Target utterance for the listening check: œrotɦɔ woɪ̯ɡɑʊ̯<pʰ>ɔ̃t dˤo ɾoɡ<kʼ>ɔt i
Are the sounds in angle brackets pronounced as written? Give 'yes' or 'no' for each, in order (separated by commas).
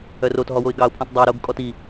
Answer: yes, yes